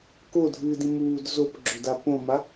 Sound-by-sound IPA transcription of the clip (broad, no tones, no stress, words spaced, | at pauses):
kodʱɨːdĩmuːd zopɡ͡ǁɵda põma